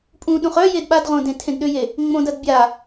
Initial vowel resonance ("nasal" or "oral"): nasal